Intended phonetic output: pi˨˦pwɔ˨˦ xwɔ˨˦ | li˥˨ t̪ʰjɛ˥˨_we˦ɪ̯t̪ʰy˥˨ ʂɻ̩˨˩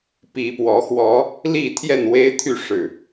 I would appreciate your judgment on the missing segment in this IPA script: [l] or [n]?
n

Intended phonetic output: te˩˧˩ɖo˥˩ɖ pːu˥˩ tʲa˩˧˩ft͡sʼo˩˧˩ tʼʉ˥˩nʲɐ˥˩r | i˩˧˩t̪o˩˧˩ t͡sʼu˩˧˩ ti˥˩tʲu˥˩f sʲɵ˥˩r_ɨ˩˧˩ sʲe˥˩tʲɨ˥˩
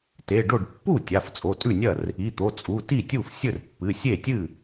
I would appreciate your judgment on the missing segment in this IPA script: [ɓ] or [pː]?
pː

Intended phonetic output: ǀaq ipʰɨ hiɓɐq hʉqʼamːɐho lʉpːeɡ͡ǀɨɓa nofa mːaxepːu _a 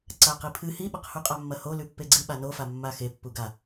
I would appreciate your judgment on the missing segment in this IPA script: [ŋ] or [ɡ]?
ɡ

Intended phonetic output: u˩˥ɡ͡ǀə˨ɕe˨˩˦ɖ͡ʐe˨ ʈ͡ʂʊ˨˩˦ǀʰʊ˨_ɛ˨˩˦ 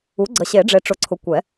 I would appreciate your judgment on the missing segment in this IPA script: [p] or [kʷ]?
kʷ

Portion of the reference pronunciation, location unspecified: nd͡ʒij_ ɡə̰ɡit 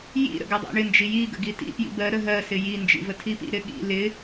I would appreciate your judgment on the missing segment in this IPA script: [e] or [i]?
i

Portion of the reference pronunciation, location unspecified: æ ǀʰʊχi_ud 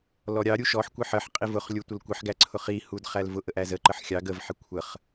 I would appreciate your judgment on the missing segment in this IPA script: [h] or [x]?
h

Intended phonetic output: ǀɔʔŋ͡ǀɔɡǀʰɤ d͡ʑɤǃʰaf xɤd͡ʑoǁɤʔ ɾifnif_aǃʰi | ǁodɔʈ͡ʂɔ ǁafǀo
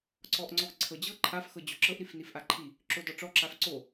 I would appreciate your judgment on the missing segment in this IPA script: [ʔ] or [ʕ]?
ʔ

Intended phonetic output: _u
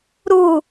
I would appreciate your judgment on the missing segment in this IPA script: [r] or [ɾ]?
ɾ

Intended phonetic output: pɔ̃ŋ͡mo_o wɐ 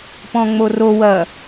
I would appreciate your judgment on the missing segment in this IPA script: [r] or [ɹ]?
r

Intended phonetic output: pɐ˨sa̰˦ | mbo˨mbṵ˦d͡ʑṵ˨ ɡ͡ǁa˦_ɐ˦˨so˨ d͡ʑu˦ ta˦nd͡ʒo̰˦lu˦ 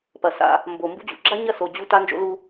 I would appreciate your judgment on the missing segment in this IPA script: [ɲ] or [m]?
ɲ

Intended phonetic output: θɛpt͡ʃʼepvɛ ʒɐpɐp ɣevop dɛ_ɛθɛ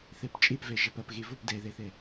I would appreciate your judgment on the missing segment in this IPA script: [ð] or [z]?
ð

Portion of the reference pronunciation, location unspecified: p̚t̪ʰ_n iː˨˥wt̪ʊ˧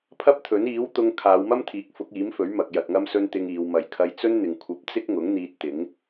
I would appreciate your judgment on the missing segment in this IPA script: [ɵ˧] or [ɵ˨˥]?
ɵ˨˥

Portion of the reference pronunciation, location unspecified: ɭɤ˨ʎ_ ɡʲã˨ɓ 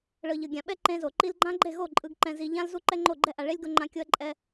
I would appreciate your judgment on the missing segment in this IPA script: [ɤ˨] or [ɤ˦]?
ɤ˨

